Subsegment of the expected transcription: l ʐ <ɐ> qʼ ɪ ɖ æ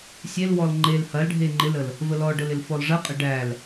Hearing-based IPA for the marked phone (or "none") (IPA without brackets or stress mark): ɐ